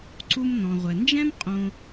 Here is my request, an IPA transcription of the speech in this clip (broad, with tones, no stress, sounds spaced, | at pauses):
ǀ u˦ m n ɔ̃˩ ʁʷ ɛ˩ n d͡ʒ ɛ̃˥ m qʼ õ˨